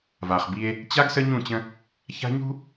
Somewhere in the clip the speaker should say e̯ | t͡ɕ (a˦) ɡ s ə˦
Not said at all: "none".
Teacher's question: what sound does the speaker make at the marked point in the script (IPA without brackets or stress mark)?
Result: a˦